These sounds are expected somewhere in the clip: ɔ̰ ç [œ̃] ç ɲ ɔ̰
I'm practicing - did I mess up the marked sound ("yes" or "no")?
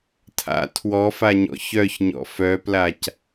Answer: yes